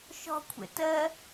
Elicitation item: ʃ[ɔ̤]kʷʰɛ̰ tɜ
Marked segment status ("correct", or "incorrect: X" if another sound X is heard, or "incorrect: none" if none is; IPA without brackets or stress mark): correct